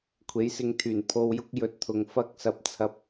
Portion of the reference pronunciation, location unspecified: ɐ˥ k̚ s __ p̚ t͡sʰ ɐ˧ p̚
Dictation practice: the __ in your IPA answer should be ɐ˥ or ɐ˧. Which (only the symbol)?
ɐ˧